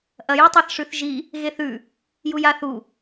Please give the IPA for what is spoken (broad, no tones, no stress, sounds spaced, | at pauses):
ʔ ɐ j e tˤ a θ ʂ ʉ θ ʒ i | ɣ e θ ʉ | j u j a θ u